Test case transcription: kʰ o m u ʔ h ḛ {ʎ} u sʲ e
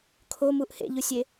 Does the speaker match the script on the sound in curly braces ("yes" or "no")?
yes